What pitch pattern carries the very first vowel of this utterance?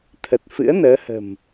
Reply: low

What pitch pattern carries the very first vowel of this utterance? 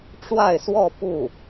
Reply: falling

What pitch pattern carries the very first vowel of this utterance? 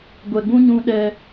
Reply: low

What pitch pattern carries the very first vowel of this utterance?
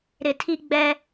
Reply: low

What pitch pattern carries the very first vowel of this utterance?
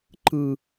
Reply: high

